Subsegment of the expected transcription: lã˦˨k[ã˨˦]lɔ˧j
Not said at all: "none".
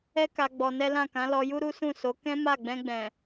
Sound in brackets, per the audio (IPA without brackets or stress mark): ã˨˦